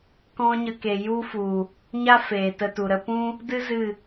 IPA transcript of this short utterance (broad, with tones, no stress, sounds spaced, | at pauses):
k ɔ̃˦ ɲ ə˧ k e˨ j u˦ f u˨ | ɲ a˦ f eː˨ t ə˧ t u˨ ɾ ə˧ p ũ˦ | d ɨ˦ z ɨ˦˨